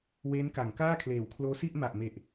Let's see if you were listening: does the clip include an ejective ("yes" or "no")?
no